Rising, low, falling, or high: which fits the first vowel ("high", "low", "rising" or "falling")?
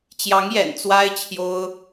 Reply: rising